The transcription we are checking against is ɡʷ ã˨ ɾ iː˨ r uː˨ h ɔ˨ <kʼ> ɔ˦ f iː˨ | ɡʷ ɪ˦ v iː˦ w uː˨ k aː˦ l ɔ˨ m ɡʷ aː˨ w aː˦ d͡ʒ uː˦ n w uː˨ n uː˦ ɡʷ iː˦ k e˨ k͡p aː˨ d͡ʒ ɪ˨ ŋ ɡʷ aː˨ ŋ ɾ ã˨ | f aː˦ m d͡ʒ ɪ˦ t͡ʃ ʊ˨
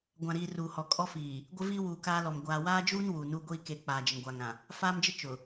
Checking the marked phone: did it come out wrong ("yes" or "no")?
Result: no